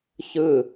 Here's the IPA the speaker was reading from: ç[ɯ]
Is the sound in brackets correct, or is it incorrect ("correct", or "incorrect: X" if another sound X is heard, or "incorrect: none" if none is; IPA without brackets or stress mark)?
correct